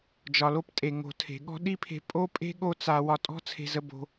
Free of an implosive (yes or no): no